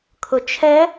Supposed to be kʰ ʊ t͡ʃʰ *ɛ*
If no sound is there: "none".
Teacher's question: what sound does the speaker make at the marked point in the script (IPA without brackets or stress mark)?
ɛ